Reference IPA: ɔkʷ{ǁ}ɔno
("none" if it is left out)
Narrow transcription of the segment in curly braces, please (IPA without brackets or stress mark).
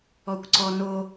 ǀ